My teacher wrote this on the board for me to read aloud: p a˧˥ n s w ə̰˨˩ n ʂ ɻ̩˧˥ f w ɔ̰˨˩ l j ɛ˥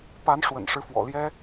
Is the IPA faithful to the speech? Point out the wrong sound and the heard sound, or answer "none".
s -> ʂ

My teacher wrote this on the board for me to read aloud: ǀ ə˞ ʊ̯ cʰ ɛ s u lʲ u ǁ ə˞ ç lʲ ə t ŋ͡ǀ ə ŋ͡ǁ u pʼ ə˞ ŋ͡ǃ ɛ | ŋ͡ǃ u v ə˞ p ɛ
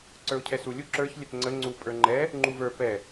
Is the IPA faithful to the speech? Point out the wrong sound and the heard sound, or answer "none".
ŋ͡ǁ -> ŋ͡ǀ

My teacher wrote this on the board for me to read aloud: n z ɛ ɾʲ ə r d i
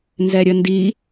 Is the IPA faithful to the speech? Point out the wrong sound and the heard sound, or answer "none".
r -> n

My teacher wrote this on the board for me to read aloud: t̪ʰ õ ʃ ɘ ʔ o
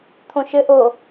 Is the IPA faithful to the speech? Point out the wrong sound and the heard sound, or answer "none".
none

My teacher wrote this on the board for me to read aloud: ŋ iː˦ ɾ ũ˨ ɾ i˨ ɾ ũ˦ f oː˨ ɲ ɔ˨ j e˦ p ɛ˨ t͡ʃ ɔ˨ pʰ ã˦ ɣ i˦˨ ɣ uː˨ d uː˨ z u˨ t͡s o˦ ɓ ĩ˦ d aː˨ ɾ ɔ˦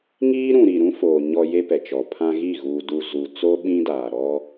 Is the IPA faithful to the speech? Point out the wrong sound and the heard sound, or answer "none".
none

